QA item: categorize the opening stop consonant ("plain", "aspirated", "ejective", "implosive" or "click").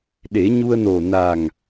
implosive